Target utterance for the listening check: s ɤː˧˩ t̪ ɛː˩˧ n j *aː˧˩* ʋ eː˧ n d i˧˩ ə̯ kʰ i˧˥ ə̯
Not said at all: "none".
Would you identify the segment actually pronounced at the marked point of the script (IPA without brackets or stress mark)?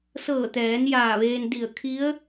aː˧˩